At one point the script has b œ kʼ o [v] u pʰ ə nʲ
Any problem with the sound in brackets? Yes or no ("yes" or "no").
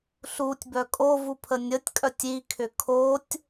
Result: no